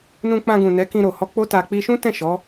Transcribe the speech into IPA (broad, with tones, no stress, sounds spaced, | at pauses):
n ũ˧ k͡p ã˧ ɡ ũ˨ n ɛ˨˦ k ĩ˧ ɾ o˨ h ɔ˧ k͡p o˦ t a˧ k͡p i˧ ʃ ũ˦ t ɛ̃˦˨ ʃ ɔ˨˦